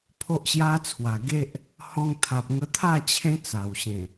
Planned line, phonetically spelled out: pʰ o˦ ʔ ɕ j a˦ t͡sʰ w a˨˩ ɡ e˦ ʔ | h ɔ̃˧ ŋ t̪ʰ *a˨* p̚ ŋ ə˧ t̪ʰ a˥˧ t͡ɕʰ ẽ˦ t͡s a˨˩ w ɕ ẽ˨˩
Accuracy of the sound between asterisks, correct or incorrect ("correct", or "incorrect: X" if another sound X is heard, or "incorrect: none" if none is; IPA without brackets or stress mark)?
correct